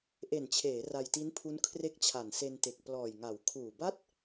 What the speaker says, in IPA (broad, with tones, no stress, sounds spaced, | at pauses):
ʔ e˨˩ n t͡ɕʰ eː˩˦ r a˧ j t i˦˥ n pʰ u˦˥ n kʰ r e˦˥ k̚ t͡ɕʰ a˨˩ n s e˧ n t e˨˩ k̚ p l ɔː˨˩ j ŋ a˩˦ w kʰ uː˨˩ b a˥˩ t̚